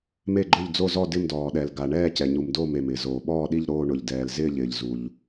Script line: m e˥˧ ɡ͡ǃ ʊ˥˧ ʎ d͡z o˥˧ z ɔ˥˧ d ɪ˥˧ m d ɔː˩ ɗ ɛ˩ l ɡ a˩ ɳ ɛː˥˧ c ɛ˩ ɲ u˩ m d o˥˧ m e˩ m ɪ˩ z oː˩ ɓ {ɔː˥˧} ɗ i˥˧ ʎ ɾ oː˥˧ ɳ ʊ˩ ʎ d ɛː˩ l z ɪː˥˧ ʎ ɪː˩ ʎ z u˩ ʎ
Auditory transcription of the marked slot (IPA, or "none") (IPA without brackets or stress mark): ɔː˥˧